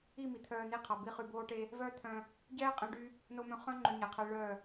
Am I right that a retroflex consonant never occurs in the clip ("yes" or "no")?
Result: no